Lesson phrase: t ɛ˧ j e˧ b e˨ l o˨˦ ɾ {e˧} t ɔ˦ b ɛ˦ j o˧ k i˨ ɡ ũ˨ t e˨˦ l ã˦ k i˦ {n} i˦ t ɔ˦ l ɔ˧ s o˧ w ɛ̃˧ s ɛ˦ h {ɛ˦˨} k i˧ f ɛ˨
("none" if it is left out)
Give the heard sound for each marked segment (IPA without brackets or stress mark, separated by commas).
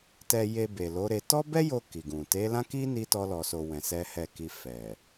e˧, n, ɛ˦˨